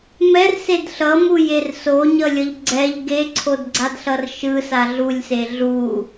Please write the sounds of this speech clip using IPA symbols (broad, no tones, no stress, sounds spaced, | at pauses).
m ɛ r s e d ɬ ʌ m u j e r s o ɲ ʌ lʲ ʌ ʎ ɡ͡ǀ ɛ ʎ ɡ e ǀʰ o d ɡ͡ǀ a d ɬ ʌ r ʃ ɯ s a ɮ u lʲ s e ɮ u